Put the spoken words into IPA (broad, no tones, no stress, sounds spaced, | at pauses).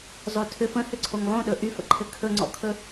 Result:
zˤ o tʰ ʏ f ə̃ h ʏ ǀʰ o ŋ lˠ õ ɗ ɵ ʔ y f ə̰ ǃʰ ɘ kʰ ɵ ŋ͡ǀ ɔ̰ kʰ ɵ